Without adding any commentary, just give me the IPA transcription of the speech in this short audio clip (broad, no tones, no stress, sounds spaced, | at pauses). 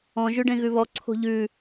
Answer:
ɔ̃ ʒ ʉ ɖ ẽ ɣ ʉ β ɔ ǀʰ o̤ ʎ ʉ